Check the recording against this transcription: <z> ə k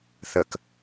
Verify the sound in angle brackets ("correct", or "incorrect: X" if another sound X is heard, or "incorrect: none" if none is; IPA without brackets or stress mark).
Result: incorrect: θ